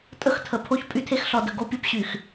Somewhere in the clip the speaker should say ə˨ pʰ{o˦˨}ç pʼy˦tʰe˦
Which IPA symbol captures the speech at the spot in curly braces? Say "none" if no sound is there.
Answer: o˦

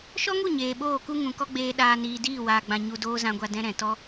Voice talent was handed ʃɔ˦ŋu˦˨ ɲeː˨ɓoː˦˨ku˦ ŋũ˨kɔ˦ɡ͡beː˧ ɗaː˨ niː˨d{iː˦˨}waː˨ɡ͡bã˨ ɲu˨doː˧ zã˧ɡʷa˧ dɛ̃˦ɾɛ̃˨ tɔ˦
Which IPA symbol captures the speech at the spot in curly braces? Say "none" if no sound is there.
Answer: iː˦˨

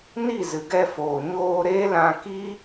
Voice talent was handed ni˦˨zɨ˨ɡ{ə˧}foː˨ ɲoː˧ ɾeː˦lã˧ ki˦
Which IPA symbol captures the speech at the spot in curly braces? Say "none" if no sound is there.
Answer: ɛ˧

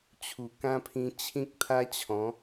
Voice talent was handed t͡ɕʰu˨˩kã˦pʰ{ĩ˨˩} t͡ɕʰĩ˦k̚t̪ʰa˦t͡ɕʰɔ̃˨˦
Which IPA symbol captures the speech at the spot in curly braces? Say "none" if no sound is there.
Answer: ĩ˧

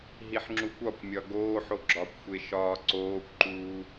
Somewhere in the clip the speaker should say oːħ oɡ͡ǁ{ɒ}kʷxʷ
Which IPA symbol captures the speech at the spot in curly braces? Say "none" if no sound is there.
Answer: ɒ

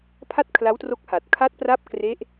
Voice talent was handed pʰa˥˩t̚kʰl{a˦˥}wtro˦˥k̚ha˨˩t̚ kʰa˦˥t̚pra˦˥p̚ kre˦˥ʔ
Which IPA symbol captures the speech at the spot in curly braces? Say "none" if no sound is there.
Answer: a˦˥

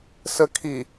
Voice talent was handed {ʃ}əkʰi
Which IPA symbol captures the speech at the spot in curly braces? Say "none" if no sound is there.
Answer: s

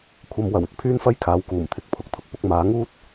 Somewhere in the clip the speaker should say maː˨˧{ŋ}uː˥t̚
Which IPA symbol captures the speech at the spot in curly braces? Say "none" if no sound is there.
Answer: ŋ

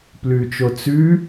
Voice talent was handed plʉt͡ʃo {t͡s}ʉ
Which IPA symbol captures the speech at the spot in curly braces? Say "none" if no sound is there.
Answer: t͡s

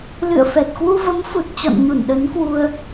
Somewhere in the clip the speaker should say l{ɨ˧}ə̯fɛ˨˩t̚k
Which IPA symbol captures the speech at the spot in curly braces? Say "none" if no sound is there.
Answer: ɨ̰˧˨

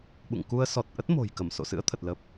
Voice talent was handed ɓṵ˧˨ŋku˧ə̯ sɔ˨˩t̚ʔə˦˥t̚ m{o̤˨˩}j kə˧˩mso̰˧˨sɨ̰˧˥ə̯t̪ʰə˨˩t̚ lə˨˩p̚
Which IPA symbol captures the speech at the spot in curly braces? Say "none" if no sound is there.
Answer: o̤˨˩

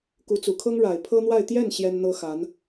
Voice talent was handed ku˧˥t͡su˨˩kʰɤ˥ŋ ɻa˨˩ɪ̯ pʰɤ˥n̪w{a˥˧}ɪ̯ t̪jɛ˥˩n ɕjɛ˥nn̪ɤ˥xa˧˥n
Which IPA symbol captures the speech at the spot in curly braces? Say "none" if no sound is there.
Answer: a˥˧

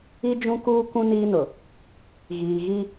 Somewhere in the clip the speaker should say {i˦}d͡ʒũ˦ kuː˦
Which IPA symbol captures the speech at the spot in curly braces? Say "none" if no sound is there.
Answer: i˦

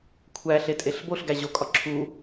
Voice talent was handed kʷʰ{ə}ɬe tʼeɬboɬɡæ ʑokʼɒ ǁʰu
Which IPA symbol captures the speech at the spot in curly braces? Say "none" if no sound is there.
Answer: æ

